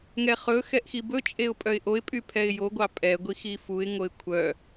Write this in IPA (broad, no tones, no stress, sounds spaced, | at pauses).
ŋ ɛ χ ɵ x ɛ ʔ x i b ɵ t͡ʃʼ e ʊ̯ pʼ œ ɪ̯ ʔ o ɪ̯ pʼ y pʰ ɛ ɪ̯ j o ɡʷ ɑ pʼ ɛ ɡʷ i x i f u ɪ̯ ŋ o ɪ̯ kʷʰ œ